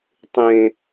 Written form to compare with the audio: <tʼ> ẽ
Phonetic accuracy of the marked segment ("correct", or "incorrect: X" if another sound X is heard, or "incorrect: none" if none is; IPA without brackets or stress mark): incorrect: tˤ